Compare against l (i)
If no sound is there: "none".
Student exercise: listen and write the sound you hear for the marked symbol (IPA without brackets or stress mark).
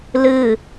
ɨ